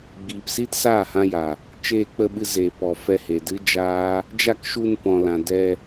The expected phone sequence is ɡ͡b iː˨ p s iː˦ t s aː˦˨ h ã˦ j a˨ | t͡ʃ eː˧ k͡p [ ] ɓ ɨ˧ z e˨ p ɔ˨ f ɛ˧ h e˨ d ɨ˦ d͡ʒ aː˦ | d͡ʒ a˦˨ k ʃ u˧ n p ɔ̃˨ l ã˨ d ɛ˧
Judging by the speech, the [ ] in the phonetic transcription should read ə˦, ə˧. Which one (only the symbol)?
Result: ə˧